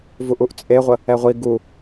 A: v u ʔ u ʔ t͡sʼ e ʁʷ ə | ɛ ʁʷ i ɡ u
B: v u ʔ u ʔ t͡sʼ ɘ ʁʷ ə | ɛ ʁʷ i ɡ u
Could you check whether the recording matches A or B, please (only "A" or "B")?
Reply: A